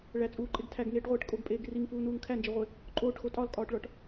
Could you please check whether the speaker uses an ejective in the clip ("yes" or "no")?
yes